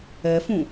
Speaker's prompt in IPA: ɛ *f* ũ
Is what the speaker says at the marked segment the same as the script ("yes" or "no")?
yes